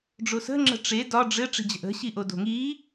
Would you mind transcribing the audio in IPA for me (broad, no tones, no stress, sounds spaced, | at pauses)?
ɖ͡ʐ o s ə̤ ŋ͡ǁ ə̤ ʈ͡ʂ e d ɒ ɖ͡ʐ ɘ ʈ͡ʂ i̤ d͡ʑ ə̤ ʔ ə̤ ɕ i ʔ o d o̤ ŋ i